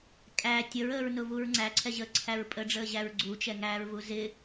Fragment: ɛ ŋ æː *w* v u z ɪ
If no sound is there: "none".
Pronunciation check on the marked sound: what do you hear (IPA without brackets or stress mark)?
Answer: ɹ